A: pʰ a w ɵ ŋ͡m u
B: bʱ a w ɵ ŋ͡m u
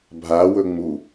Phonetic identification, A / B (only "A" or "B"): B